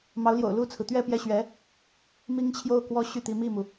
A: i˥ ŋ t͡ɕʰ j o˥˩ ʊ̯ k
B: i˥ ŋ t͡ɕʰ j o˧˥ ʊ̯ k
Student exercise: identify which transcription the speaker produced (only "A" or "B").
A